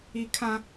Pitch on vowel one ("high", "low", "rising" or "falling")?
high